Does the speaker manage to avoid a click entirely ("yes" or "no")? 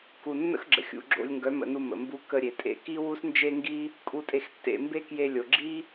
no